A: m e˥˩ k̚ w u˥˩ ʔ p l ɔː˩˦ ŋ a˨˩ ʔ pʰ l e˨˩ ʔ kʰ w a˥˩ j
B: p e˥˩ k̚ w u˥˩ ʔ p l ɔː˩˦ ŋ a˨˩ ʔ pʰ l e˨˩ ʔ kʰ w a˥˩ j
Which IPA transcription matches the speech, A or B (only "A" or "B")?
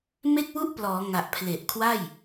A